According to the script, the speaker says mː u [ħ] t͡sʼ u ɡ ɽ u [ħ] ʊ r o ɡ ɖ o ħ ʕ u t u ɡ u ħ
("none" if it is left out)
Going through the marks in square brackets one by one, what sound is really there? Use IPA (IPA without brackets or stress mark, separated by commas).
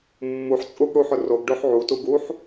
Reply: ħ, ħ